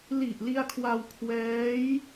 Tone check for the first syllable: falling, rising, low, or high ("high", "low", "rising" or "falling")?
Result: low